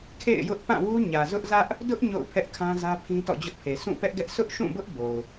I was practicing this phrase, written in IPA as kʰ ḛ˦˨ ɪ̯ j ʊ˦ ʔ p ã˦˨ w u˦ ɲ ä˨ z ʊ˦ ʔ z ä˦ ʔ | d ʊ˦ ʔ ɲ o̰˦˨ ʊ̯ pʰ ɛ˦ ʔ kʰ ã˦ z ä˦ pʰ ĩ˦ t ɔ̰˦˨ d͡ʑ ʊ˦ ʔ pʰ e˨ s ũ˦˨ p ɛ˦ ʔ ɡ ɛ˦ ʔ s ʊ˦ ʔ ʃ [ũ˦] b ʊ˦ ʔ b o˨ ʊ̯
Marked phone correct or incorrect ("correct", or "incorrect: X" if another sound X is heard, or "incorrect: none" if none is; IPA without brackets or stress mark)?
incorrect: ũ˦˨